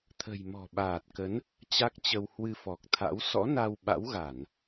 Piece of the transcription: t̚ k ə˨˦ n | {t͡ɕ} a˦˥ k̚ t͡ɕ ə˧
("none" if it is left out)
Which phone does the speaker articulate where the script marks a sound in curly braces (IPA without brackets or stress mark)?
t͡ɕ